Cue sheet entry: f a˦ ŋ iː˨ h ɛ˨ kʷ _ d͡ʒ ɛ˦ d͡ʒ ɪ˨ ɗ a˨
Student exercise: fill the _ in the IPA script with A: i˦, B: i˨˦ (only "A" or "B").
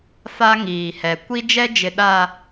A